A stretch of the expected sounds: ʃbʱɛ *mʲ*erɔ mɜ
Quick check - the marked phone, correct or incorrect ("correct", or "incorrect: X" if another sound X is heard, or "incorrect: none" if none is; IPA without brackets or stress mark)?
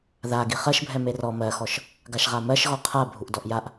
incorrect: m